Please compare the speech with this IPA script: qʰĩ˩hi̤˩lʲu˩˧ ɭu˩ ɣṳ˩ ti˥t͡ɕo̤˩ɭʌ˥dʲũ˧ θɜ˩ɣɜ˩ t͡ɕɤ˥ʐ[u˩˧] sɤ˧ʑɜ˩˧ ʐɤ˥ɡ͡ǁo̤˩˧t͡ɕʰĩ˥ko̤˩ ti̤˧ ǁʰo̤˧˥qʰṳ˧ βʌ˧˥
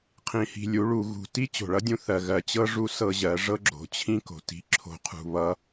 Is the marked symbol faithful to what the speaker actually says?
no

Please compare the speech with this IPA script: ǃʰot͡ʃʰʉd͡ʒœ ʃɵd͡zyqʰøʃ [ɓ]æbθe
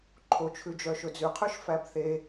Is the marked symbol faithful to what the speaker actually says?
no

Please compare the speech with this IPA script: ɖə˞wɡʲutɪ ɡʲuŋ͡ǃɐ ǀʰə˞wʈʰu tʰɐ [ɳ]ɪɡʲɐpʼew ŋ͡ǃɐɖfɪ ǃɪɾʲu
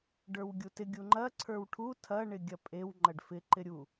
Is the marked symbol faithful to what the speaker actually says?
yes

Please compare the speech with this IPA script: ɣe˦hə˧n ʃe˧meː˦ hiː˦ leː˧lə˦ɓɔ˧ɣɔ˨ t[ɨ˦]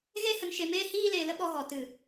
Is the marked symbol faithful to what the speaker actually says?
no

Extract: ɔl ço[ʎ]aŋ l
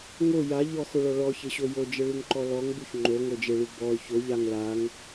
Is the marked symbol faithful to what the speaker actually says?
yes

